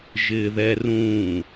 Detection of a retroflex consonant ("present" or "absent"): absent